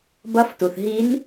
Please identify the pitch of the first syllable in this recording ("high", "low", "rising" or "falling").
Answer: rising